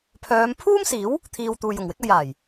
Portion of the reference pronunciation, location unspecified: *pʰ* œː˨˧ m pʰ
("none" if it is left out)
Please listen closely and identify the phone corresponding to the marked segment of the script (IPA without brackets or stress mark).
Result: pʰ